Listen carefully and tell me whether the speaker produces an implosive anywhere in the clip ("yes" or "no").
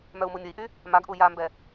no